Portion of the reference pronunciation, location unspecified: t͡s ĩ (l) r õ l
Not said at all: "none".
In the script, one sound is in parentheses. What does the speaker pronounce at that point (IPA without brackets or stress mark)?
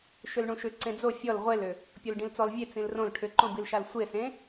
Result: l